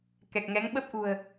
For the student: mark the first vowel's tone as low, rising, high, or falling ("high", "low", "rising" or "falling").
low